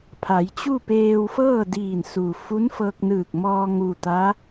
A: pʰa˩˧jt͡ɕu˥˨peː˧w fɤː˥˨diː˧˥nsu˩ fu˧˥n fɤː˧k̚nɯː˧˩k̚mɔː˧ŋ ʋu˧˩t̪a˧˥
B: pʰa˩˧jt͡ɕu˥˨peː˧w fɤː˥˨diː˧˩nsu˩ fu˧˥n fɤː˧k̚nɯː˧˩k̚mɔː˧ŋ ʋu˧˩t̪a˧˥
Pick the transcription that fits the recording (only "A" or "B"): B